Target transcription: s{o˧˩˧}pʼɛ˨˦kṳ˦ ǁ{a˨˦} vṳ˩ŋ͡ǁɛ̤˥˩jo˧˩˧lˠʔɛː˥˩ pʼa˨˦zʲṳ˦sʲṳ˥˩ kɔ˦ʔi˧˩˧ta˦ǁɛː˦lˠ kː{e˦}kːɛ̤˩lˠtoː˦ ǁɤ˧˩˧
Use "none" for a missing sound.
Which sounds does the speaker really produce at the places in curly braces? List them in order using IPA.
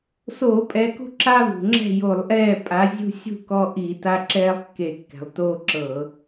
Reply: oː˧˩˧, a˦, e˧˩˧

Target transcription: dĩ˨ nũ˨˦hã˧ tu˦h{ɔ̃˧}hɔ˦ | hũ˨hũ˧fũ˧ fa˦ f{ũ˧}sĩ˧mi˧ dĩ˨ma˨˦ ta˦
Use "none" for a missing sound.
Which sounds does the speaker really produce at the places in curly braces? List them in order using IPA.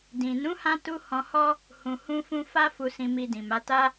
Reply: ɔ̃˧, u˧

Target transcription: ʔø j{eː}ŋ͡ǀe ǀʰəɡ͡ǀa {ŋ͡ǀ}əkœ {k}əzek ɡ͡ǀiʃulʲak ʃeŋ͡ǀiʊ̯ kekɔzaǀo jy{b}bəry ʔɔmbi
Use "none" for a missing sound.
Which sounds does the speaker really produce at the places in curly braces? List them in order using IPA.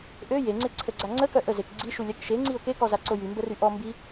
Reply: e, ŋ͡ǀ, ʔ, m

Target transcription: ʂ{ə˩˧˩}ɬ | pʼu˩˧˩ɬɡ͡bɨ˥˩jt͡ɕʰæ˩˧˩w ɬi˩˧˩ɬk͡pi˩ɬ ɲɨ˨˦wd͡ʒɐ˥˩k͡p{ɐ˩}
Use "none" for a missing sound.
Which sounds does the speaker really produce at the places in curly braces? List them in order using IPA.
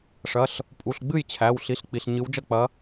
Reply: ɐ˩˧˩, ɐ˨˦

